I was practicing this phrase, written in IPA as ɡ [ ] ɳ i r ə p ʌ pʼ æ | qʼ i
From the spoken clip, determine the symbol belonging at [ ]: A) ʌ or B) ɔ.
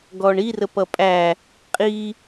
B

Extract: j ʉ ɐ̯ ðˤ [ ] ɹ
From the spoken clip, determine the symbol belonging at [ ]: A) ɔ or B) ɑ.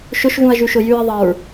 B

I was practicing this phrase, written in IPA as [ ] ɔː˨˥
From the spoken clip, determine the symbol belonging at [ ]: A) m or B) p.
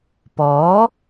B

